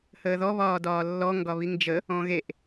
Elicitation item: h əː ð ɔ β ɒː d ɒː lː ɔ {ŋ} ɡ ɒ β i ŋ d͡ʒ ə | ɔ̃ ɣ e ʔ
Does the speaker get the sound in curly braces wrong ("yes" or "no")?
no